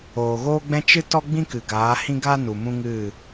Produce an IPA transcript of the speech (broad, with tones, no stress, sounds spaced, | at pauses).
oː˨ ɣ oː˦ ɡ͡b ɛ̃˦ t͡ʃ ɨ˦ t ɔ˦ ɡ͡b ĩ˦ k ɨ˨ ɡ aː˨˦ h ĩ˦ ɡ aː˦ n u˨ m ũ˦ ŋ ɨ˦˨